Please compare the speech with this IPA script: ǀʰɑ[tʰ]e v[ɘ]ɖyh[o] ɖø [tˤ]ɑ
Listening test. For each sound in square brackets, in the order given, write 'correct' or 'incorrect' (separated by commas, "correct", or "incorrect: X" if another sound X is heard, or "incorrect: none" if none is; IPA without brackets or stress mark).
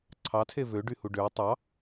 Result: correct, incorrect: ø, incorrect: u, correct